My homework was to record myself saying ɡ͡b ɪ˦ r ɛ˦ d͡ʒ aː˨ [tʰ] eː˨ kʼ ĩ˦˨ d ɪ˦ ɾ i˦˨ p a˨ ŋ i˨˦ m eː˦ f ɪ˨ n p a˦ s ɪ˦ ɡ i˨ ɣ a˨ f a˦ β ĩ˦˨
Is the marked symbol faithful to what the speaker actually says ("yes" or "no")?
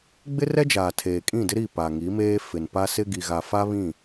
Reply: yes